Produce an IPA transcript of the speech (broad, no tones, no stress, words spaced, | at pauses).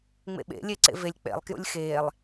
ŋ͡mḛɓḛ lʲeǀḛvelʲ k͡pḛlˠ kjṵlʲxeːlˠ